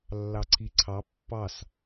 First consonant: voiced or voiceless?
voiced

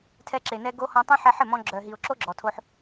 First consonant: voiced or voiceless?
voiceless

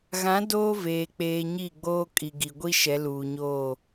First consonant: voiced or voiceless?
voiced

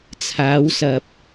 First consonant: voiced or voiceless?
voiceless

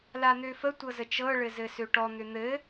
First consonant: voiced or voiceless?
voiced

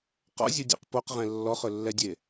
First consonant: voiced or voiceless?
voiceless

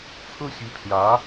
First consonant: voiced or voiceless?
voiceless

